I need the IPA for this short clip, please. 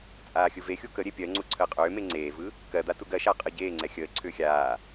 t͡sʼ aː xʲ ɯ v e xʲ u k ə ɾʲ e pʲ ɜ ŋ͡ǀ u ǀʰ əː qʼ ʏː m e ŋ͡ǀ eː v ɯ | k ɜ d̪ a t u ɡ ɜ ʃ aː qʼ ɯ ɟ eː ŋ͡ǀ ɛ xʲ əː ǀʰ ʏː xʲ aː

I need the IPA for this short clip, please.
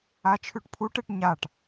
a t͡ʃʰ ʉ ʈ pʰ u ʈ e ʈ ɲ a ʈ

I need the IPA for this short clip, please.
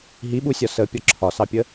ɦ i ɓ u sʲ ɒ s ə pʲ ɒ ǁʰ ɒ s ɑ pʲ ə

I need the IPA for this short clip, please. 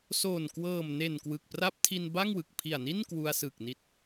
s o˨˩ n k w ɤː˨˩ m n e˨˩ n k w ɯ˨˩ k̚ p r a˦˥ p̚ tʰ i˧ n b a˥˩ ŋ w ɯ˨˩ k̚ pʰ i˨˩ a̯ n i˥˩ n k w u˧ a̯ s ɯ˨˩ k̚ n i˦˥ t̚

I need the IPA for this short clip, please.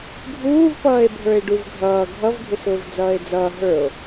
ɡʱ uː v p ʌː e̯ bʱ ə˞ e̯ ɖ u v ɡʱ ʌː ɡʱ ʌ v ɡʱ ɪ s ʊː v d͡z ʌː e̯ d͡z ʌː ɦ ə˞ o̯

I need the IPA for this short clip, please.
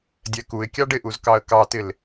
dʲ ɛ k u ɪ̯ kʲ ɑ ɖ ɪ ʔ u z k ɑ ə̯ k ɑ t ɪ l

